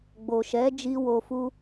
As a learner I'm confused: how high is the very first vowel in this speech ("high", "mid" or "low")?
mid